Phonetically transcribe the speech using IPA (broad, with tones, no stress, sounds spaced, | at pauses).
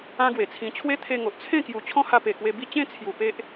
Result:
ã˦ ɡ w e˨˩ t͡sʰ ĩ˧ t͡ɕʰ w e˦ t̪ʰ e˧ ŋ o˨ ʔ t͡sʰ ẽ˥˧ k j u˨˩ t͡ɕʰ ɔ̃˦ h a˧ p e˨˩ k w e˧ b i˥˧ t͡ɕ ẽ˥˧ t͡sʰ j u˨˩ p e˦ ʔ